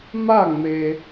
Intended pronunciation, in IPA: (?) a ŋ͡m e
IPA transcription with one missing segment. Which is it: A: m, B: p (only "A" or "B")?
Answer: A